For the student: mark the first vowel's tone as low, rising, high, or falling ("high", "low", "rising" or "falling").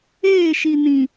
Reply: falling